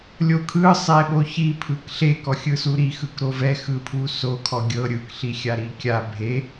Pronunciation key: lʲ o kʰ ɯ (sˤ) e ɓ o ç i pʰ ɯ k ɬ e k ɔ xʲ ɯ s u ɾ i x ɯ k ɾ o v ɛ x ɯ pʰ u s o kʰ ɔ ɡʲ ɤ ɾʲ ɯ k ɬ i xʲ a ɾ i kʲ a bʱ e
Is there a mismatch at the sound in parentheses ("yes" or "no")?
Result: no